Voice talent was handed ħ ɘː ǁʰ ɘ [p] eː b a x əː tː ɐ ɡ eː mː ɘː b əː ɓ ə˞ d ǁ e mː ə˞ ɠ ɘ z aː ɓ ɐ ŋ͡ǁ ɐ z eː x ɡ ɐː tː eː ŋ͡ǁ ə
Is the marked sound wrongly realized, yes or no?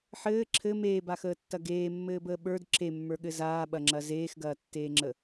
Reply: yes